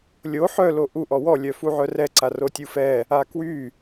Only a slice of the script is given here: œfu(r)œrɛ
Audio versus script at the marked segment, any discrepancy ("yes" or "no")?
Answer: yes